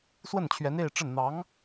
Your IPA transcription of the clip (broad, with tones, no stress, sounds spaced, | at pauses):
s w ə˥˩ n t͡ɕʰ ɥ ɛ˧˥ n e˥˧ ɪ̯ ʈ͡ʂ ə˥˩ n n̪ ɑ˧˥ ŋ